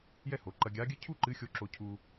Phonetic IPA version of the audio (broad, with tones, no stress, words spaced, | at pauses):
jɛ˥ho˩˧ ǃɐ˧ɡʲaː˧˥ɡʲɨ˥ cʰu˥ǃɨ˧˥xʲo˧ ǁo˧cʰu˧